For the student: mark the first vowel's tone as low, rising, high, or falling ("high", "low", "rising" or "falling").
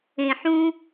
low